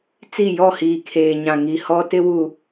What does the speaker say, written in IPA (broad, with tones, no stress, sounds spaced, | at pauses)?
t͡s i˦˨ j ɔ˦˨ h iː˨ kʰ eː˨ ɲ ã˨ ŋ i˨ h ɔ˦ t ɪ˦ w u˨